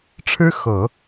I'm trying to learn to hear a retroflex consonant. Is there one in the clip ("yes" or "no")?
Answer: yes